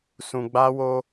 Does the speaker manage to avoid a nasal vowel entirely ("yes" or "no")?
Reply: no